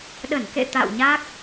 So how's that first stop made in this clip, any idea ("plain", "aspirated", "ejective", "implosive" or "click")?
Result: implosive